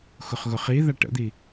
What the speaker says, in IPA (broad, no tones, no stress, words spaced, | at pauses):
xʊχɣʊχiða ʈə̰d̪i